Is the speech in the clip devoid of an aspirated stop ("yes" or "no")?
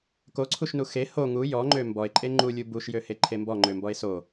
no